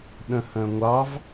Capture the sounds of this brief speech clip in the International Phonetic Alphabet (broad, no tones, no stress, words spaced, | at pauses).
ɗə̃hə̃ŋʷɑv